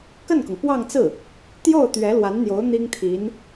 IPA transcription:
k ə˥˩ n k ʊ˩ ŋ p w ɑ˥˧ ŋ t͡s ɹ̩˥˩ | t̪ j o˥˩ ʊ̯ t̪ ɥ ɛ˧˥ l w a˧˥ n n̪ j o˧˥ ʊ̯ n̪ i˥ ŋ t̪ʰ i˧˥ n

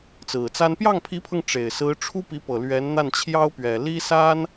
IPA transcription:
t͡s ɹ̩˨˩ t͡s a˥ n p j ɑ˥˩ ŋ pʰ i˧˥ pʰ ɤ˧ ŋ ʈ͡ʂ e˨˩ ɪ̯ s ɹ̩˧˥ ʈ͡ʂʰ u˥ p i˧˥ p ɤ˨˩ l ɥ ɛ˧˥ n n̪ a˥˩ n t͡ɕʰ j ɑ˥ ʊ̯ p ɥ ɛ˨˩ l i˥ s a˥ n

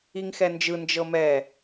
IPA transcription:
i ŋ x ɛ n d͡ʒ ɯ n d͡ʒ ɤ m ɛ

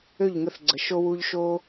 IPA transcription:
ø˦˨ ʎ ŋ ə˧ θ ɡ͡ǀ ə˨ ʃ o˧ w u˧ ʎ ʃ o˦

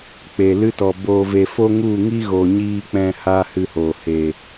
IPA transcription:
k͡p e˨ l ɨ˦ t ɔ˨ b oː˨ v e˨ f o˦ ŋ u˦˨ ŋ i˦ ɣ o˨ ɲ iː˧ k͡p ɛ̃˦ h aː˦ h ɨ˧ h oː˨ h eː˨

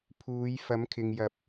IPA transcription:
pʰ uː˨˧ j f ɐ˨˥ m kʰ ɪ˨ ŋ j ɐ˨˥ p̚

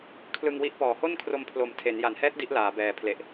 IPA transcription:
kʰ l ɯ˧ ŋ w i˦˥ ʔ p ɔː˨˩ h o˥˩ n kʰ r o˧ m pʰ l o˨˩ m tʰ e˩˦ n j a˩˦ n h ɛː˦˥ t̚ d i˦˥ ʔ l aː˩˦ b ɛː˨˩ pʰ l e˨˩ ʔ

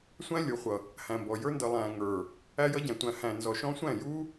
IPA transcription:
sʷ æ̃˦ lʲ u˨ χʷ ʌ˨ | h æ̃˨ m b ɔ˨ j ə˞˧ n d ʌ˨ lˠ æ̃˨ ŋ ə˞˨ | æ˧ j ʌ˧ ɟ æ̃˨ tʷ æ̃˨ h æ̃˨ n z ɔ˨ ʃ ɔ̃˧ sʷ æ̃˦˨ j u˧

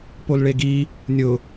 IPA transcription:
p o l ɭ e ɡ i | nʲ ʊ

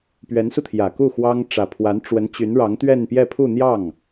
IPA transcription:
p ɥ ɛ˧˥ n s u˧ t̪ʰ j ä˨˩ k u˥˩ x w ɑ˥ ŋ ʈ͡ʂ ä˨˩ pʰ w a˧˥ n ʈ͡ʂ w ə˧˥ n t͡ɕ y˧˥ n ɻ ɑ˧˥ ŋ t̪ ɥ ɛ˥˧ n p j ɛ˥˧ pʰ u˥˧ n̪ j ɑ˥˩ ŋ

